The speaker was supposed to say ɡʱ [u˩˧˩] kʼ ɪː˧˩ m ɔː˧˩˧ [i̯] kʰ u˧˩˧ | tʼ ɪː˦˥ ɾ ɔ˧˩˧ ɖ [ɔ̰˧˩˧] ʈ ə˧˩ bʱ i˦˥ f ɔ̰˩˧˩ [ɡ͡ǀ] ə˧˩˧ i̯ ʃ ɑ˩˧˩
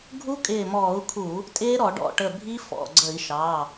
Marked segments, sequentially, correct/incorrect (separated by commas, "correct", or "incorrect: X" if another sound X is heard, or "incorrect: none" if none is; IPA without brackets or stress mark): incorrect: u˦˥, incorrect: u̯, incorrect: ɔ̰˧˩, correct